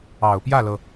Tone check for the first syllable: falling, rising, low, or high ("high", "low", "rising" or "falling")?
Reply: low